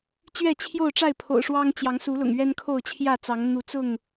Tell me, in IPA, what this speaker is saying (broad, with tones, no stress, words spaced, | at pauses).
t͡ɕɥɛ˥˨t͡ɕʰjo˥˨ʊ̯ʈ͡ʂa˥˨ɪ̯ pʰo̰˨˩ʊ̯ʂwɑ˦ŋ t͡ɕjɑ˨˦ŋ su˨˦lʊ̰˨˩ŋ ɥɛ˦nkʰo˥˨ʊ̯ t͡ɕʰjä˥˨t͡sɑ˨˦ŋ n̪u˨˦t͡sʊ˥˨ŋ